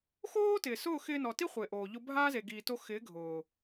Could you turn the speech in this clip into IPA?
x oː˦ t ɪː˨ s ʊː˦˨ x ɪː˧ n ɔ˨ t i˦ χʷ ɪː˨ ʔ oː˨ ʎ ʊ˧ bʱ aː˦ z e˨ ɡ iː˨ t o˧ x ɪː˨˦ ɡʱ ʊː˨

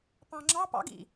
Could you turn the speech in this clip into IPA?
p ɑ̃ ŋ͡ǁ ɑ p ɑ̰ ɡ ḭ

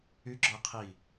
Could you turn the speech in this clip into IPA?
y ɡ͡ǁ ɔ e̯ qʰ i

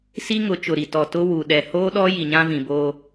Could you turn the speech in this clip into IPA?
s i˦ ŋ ʊ˨˦ t͡ʃ ʊ˨ ɾ i˨ t ɔ˨ t ʊ˦ w u˨ ɗ ɛ˨ h oː˦ ɗ ɔ˦ j i˨ ɲ ã˦ v ĩ˨ b oː˦

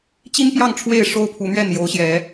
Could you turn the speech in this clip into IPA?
t͡ɕ i˦ n p j ɑ˥˨ ŋ ʈ͡ʂʰ w e˥˨ ɪ̯ ʂ o˦ ʊ̯ pʰ u˨˦ n̪ ɥ ɛ˥˨ n j o˨˦ ʊ̯ ɕ j ɛ˨˦

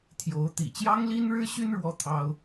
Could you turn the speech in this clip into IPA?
t̪ʰ j o˨˦ ʊ̯ t̪ ḭ˨˩ t͡ɕ j ɑ˦ ŋ l i˦ n ɻ ɻ̩˦ ɕ y˦ n ɻ w ɔ˦ t̪ʰ ɑ˦ ʊ̯

